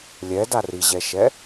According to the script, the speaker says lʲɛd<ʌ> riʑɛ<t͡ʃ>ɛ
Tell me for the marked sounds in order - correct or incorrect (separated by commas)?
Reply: incorrect, incorrect